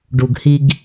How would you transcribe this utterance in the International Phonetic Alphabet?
ɖ u˩ ɡ h i˨ ɡ

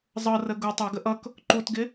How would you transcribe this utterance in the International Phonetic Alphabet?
zˤ ɤ r ə ɡ u tˤ o ɡ ə ʔ ʌ k | ǃ u t ɡ ɪ

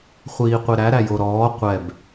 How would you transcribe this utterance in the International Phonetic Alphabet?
χʷ iː qʷ i ɾ æ ɾ æ j o ɾ ɔː qʷ ɛ b

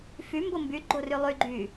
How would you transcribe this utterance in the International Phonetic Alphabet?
f y m b o m b y ɡ͡ǃ o r y lˠ y ɡ͡ǃ y

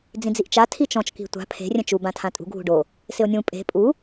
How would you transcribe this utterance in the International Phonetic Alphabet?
d͡z ĩ d͡z i ʔ t͡ʃ a tʰ i t͡ʃ ɔ̃ t͡ʃ k i̤ tʷ a̤ pʰ e̤ rʲ ɛ̃ t͡ʃ u b ã tʰ ã tʼ ṳ ɡʱ ṳ ɖ o | s ɪ o̯ nʲ ũ pʼ e̤ pʼ u

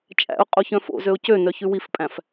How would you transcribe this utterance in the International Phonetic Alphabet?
t͡ʃʼ æ̰ ʊ̯ qʼ o ç œ̃ f o̰ z ø ʊ̯ c ø n œ ç ʉ w i f pʼ æ̃ f

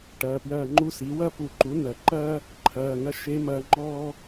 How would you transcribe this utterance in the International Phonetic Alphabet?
ʈ ɐː˩˧˩ p j ɐː˦˨ ŋ͡ǃ u˥ s i˩˥ w ɐ˥ p u˨˩˦ ǃ u˩˥ n ɐ˨˩˦ ǃ ɐː˥ | ǃʰ ɐː˩˧˩ ŋ ɐ˥ ʃ e˧˥ m ɐː˧˥ ŋ͡ǃ ɔː˥

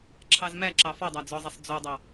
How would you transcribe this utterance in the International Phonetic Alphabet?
ǁʰ ɑ z m æ ǁ ɑ f ɔ dˤ æ d͡z ɔ zˤ ɛ sˤ d͡z o dˤ ɑ

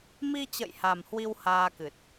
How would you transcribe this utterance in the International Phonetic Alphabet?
m i˧ t͡ɕ ə̰˧˨ j h a˨˩ m h w i˧ w h aː˧ k ɨ˨˩ t̚

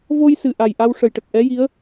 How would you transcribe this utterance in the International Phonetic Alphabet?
v o˧ j s ɨ˨˩ ʔ a˨˩ j ʔ a˧ w ʂ ə˨˩ j ʈ ə˨˩ k̚ ʔ ɛ˧˥ j i˧˥ ə̯

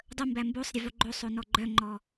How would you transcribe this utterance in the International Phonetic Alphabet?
dˤ ə m b æ m b o sˤ ɾʲ ə v o ɡ͡ǃ o sˤ o n ɔ ɡ͡ǃ œ ŋ͡ǃ ɔ

